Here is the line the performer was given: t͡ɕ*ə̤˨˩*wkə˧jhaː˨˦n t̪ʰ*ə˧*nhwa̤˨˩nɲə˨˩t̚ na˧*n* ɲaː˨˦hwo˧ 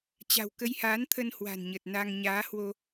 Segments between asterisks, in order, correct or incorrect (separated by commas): incorrect, correct, incorrect